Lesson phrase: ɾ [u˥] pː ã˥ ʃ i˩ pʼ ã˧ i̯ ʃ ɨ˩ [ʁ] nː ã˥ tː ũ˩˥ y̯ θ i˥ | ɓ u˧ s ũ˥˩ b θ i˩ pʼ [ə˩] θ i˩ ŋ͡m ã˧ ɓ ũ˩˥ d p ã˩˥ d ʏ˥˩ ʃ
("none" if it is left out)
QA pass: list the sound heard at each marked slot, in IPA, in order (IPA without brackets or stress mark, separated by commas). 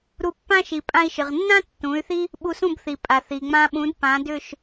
u˧, ʁ, a˩